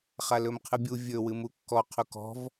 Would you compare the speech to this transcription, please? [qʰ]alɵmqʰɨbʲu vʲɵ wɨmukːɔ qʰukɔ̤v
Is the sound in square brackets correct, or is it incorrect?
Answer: incorrect